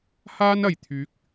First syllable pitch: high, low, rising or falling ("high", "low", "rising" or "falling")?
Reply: high